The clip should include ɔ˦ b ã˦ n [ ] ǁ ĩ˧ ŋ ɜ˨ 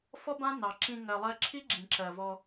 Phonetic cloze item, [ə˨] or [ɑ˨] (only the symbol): ɑ˨